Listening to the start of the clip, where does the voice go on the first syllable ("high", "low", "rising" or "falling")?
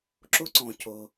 high